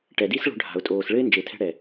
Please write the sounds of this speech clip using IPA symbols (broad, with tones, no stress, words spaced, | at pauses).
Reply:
ʈɛ˨di˦sɭo̤˧ ɖʱa̤˨ʊ̯tʼoː˨sɭɘ˦ɪ̯ nd͡ʒe˨tʰɛ̤˧ɽɛ˨